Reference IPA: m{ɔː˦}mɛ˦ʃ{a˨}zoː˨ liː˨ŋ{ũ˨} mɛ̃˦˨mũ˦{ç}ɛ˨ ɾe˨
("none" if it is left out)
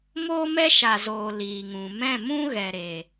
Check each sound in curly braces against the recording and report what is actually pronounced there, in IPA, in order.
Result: oː˦, a˨, ũ˨, ɣ

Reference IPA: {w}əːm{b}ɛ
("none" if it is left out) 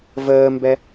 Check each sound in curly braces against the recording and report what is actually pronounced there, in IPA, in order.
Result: v, b

